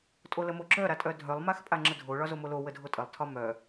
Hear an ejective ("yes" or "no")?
yes